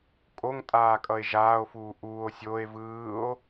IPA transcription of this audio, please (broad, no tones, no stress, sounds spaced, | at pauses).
kʼ o ŋ tʼ aː kʼ ʌ e̯ ʒ aː o̯ f uː ʔ uː o̯ sʲ o e̯ v ɯː o̯